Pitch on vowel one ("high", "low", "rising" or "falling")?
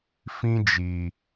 high